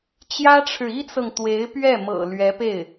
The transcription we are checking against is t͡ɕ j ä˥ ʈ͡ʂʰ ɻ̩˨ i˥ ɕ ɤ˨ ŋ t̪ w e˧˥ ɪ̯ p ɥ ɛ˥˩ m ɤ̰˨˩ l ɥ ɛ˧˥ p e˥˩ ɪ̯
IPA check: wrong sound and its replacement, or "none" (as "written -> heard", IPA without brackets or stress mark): ɕ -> t͡s